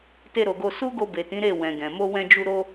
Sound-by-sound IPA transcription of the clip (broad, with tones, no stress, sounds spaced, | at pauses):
t e˧ ɾ o˨ ɡ o˧ s u˦ ɡ o˧ b e˨ t ĩ˨˦ ɾ e˦˨ w ɛ̃˨ ɡ ɛ̃˨ m o˧ w ɛ̃˧ d͡ʒ u˧ ɾ o˧